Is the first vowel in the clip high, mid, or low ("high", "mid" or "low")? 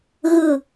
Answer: high